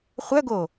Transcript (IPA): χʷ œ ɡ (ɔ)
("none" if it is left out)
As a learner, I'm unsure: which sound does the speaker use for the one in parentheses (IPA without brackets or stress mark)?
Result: o